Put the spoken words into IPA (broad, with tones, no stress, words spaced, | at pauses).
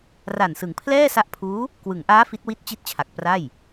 ra˨˩nsɯ˩˦ŋpʰlɛː˥˩ sa˦˥ʔpʰuː˦˥ | kwɯ˩˦ŋʔaː˦˥ fi˦˥t̚wi˥˩t̚t͡ɕi˥˩t̚t͡ɕʰa˨˩k̚ pra˥˩j